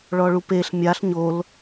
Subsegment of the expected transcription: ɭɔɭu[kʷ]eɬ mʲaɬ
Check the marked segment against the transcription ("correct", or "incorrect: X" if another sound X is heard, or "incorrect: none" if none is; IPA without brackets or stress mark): incorrect: p